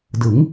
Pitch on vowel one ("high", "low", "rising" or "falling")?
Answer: rising